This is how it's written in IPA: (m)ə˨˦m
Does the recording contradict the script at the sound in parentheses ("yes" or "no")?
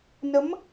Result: yes